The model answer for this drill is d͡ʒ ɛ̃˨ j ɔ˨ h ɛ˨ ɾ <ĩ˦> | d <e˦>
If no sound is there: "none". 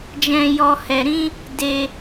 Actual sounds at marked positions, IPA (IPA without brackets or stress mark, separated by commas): ĩ˧, e˧